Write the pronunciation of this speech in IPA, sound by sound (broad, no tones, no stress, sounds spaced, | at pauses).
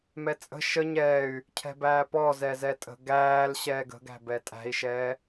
m ɛ t͡sʼ ə̤ ʃ ə ɲ ɛː y̯ | cʰ ɛ̤ b æː p ɔ z ɛ z ɛ tʼ ə̤ ɡ æː l ɕ ɛː ɡ ə̤ ɡ æ̤ b ɛ tʼ æ̤ i̯ ʃ ɛː